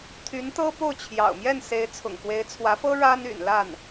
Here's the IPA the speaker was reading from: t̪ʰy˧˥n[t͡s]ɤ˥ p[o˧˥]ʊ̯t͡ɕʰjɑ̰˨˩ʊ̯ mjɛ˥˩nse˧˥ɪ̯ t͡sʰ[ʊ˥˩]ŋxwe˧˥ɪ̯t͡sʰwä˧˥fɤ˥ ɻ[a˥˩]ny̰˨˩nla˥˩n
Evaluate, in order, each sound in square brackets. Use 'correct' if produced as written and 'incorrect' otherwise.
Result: incorrect: t̪, incorrect: o˥˩, incorrect: ʊ̰˨˩, incorrect: a˥

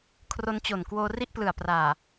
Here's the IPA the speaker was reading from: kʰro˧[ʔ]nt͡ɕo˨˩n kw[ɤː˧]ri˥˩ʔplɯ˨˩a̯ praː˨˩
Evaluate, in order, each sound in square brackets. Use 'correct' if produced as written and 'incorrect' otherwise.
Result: incorrect: none, incorrect: oː˧

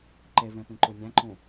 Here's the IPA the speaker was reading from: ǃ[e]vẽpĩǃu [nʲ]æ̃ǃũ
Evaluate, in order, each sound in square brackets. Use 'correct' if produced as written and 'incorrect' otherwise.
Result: correct, correct

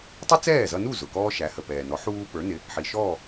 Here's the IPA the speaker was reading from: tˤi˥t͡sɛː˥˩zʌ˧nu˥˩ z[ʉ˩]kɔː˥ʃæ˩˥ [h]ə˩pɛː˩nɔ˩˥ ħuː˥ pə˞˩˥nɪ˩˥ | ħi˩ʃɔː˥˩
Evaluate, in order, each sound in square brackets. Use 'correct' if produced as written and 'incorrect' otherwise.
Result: incorrect: ʊ˩, correct

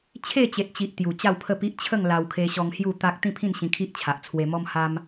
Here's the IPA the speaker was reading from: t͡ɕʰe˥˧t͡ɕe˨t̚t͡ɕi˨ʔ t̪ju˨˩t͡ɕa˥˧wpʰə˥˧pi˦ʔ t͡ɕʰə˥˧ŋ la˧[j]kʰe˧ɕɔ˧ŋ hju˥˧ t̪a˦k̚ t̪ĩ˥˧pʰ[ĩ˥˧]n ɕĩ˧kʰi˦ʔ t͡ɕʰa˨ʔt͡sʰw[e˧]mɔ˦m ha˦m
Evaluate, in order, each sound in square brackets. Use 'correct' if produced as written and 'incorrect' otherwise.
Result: incorrect: w, correct, correct

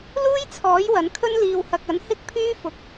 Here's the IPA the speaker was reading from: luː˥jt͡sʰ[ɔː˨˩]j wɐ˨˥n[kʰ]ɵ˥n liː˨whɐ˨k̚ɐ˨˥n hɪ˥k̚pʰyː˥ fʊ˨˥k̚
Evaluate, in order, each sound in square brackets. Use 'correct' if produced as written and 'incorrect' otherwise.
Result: incorrect: ɔː˨˥, correct

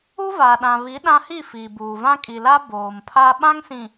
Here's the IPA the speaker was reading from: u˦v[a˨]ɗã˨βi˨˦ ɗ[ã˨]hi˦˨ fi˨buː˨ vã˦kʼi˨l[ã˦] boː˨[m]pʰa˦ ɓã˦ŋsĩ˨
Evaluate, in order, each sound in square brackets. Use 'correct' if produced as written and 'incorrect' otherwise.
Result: correct, incorrect: ã˦, incorrect: a˦, correct

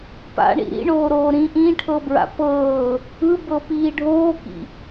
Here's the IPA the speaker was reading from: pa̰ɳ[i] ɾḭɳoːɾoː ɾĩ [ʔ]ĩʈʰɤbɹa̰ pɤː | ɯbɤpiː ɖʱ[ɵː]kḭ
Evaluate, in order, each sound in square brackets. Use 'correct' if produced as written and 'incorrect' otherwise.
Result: incorrect: ḭ, correct, incorrect: oː

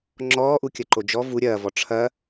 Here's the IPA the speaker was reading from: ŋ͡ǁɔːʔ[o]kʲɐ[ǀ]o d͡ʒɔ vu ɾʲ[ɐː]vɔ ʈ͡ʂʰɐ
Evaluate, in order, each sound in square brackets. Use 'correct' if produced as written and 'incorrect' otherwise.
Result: incorrect: u, incorrect: ǃ, correct

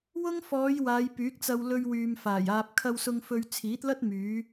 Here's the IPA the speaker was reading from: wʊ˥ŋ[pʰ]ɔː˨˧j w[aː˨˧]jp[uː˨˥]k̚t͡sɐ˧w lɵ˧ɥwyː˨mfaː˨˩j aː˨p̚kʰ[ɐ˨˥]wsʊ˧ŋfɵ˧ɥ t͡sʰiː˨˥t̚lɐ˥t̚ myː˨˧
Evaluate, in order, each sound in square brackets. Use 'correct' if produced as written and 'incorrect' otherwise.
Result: incorrect: f, correct, incorrect: yː˨˥, incorrect: ɐ˧

